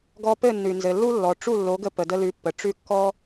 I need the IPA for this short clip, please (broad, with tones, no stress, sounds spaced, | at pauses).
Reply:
ɡ ɔ˧ p ɘ˥˩ nː ʉ˩ n z ɘ˩ lː u˥ lː ɔ˩ ʈ͡ʂ u˥˩ lː o˩˥ ɡ ə˧ p ə˩ d ə˧ l ʉ˩˥ pː ə˩ ʈ͡ʂ ʉ˥˩ kː ɔ˥